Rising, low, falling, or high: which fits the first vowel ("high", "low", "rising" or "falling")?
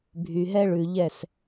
low